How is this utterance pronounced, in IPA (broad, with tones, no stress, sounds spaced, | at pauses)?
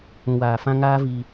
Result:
ũ˨ w aː˨ f ã˦ ŋ aː˦ v iː˧